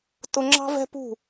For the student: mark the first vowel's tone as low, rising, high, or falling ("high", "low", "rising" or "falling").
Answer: high